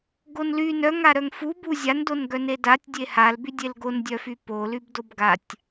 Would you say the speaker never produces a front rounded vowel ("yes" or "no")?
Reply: no